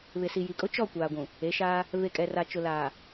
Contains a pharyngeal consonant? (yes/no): no